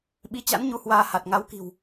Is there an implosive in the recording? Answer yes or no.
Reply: yes